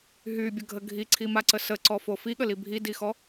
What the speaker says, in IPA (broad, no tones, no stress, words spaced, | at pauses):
ɦybʲəɡʱə ɡʱiǀʰimaǀə səǀɔfo fiɠəli bʱidixɔ